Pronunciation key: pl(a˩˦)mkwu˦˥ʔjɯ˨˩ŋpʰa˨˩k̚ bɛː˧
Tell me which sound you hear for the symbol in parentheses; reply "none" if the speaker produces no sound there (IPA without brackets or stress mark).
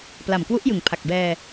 a˨˩